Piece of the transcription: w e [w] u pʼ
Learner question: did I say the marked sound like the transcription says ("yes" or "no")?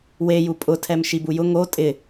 no